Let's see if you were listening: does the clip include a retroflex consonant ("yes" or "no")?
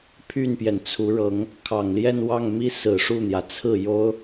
yes